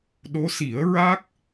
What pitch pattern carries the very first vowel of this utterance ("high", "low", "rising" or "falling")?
rising